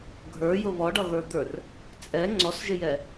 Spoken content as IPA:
ɡʱ ə˞ j ʊ β ɔ ɖ ʌ ɣ ə˞ d̪ ə˞ r | t͡sʼ ɛ ŋ͡ǀ ɔ s ʒ ɪ j ɛ

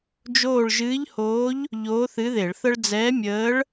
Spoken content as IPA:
d͡ʒ oː˦˨ ɭ ʒ ɨː˧˥ ʎ h oː˧˥ ʎ | ʎ oː˧˥ θ ɨ˧˥ ð e˧˩˧ ɭ θ ə˥ ɭ d͡z ɛː˧˥ mʲ əː˧˥ ɭ

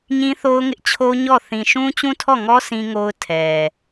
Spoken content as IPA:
ɲ ĩ˦ θ o˦ ʊ̯ ŋ ɪ˦ ʔ t͡ɕʰ o˦ ɲ ɔ˦˨ θ ĩ˨ ʃ ũ˦ t͡ɕ ũ˦ tʰ ɔ˦˨ ŋ ɔ˦ sʰ ĩ˦ ŋ o˦ ʊ̯ tʰ ɛ˨

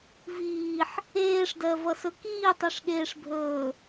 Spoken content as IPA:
v iː ħ | eː ʂ d ɜ v ʌ s ɵ k iː tˤ i ʂ ɠ eː ʂ bʱ ɵː

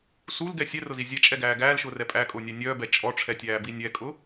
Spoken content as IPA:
s u l ɡ ɛ sʲ ɛ r ʊ z i zʲ ɛ t͡ʃʼ ɛ ɡ æː ɡ æː l ʃ ʊː r ɛ pʼ æ kʼ ʊː nʲ æ nʲ œː b ɛ t͡ʃʼ ɔ ʈ͡ʂʰ ɛ tʲ æː b i nʲ ɛ kʼ ʊ

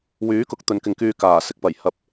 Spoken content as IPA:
w yː˨˥ k ʊ˨ k̚ t̪ ɵ˨˧ n k ɪ˨ ŋ k yː˧ k aː˨˩ s ɪ˧ k̚ p ɐ˨˩ j h ɐ˨ p̚

